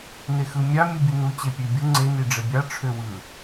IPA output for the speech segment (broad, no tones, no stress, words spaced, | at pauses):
nexɯmʲɑ mʲɯbʲunu t͡ɕepʲøbʲu ŋ͡ǀe niɖ͡ʐebʲɑ ʈ͡ʂʰøwɯ